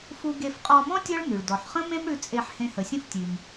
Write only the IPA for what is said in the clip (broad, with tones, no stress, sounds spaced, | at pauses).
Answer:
f u˧ ɡ e˧ f qʼ ɔ˧ m ɔ̃˥ tʲ ɔ˥ ɭ n ʉ˩ ɭ d ɔ˩ ħ χ ə̃˥ m ẽ˥ m ɽ ʉ˧ t͡sʼ e˧ ħ h ẽ˧ h ə˩ sʲ ə̃˥ f tʲ ʉ˩ m